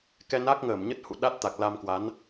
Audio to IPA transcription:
k ɛ˧ n a˦˥ k̚ ŋ əː˧˩ m ɲ ə˦˥ t̚ h ṵ˧˨ ɗ a˦˥ t̚ t̪ a˨˩ k̚ l a˧ m k w a˨˦ n

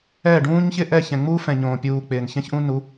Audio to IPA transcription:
ɛː˦˨ ɖ ũː˦ ɲ ç ɪ˦ ʔ ɛ˦˨ ç ɛ̃˨ ŋ͡m u˦ f ɛ̃˨ ɲ õː˨ pʲ uː˨ k͡p ɪː˨ n ç ɛ̃˦ ç ʔ ũ˦ n u˨˦

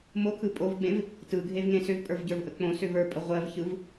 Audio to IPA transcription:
m o kʰ ɯ pʼ o v ɡ͡b ẽ v | t ɯ ɡʱ e v ŋ ẽ s ʏ v pʼ ə˞ v ɟ ə˞ v ʔ ə k͡p õ s ʏ v ə˞ pʼ ə ʁʷ ɜ v ç ɯ v

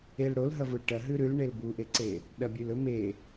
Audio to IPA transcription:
e l ɽ o l ɦ ɐ v u l ʈ ɐ ɦ ʉ ɾ ʉ l ɳ e l b u ʔ e ǀ e | ɗ ɐ bʲ ʉ l ɵ m e

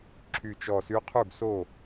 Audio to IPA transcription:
ǁʰ y˧˩ t͡ʃ ɔ˧˩ s y˧˥ qʰ u˥˩ ɡ s o˥˩

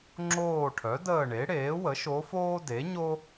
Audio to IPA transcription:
ŋ͡ǁ oː˦˨ ʈʰ œ˩˥ d əː˦˨ ɳ e˩˥ ɽ eː˩˥ w ə˩˥ ʃ o˧˥ f oː˥ d e˩˥ ɲ o˥

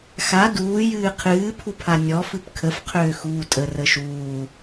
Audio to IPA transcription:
x a d uː j ɨː qʰ ɨː pʰ u pʰ a nʲ ɔ f ɨ p kʰ ə f qʰ øː x uː tʼ ə r ə ʃ uː

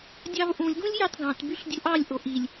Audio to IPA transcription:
dʲ ɑ v ʔ ũ lʲ ɡ ũ lʲ j ɑ t ɡ ɑ̃ t b y ɬ dʲ u ʔ ɑ lʲ ʔ o ʔ i lʲ

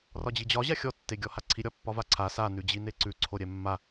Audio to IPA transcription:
r ɒ d͡ʑ i d͡ʑ ɒ ʑ a xʲ ɔ tː e ɡʲ ɔ h a ǀʰ i ɾʲ ɒ pː ɒ v a ǀʰ a s a n ʉ d͡ʑ i n e ǀ ʉ ǀʰ o ɾʲ ɛ mː a

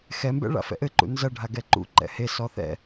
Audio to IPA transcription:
x ɛ m b ɛ̰ ɭ a̰ f ɛ̰ ʔ ɘ ǃ ṵ n z ɐ ɖʱ a ɡ ɛ ǃ ṵ ǃ ɛ̰ h e s ɔ θ ɛ̰

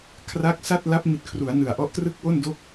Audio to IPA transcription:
kʰ r a˦˥ k̚ s a˥˩ t̚ l a˦˥ p̚ m i˨˩ t̚ kʰ r u˩˦ a̯ n ɯ˨˩ a̯ ʔ ɔ˦˥ ʔ t r ɯ˥˩ k̚ w o˥˩ n d o˥˩ k̚

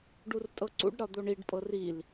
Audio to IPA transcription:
ɖ u r tʼ ɤ ǀ ṵ ɖ ɾ ɒ d̪ o ɳ i ɖ pʼ ɤ r i l

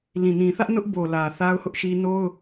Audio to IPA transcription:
l ĩ˨ n ĩ˨ θ ä˦ ʔ n ʊ˦ ʔ b o˨ l ä˨ θ a˦ ʊ̯ h ʊ˦ ʔ ʃ i˦ n o˦ ʊ̯

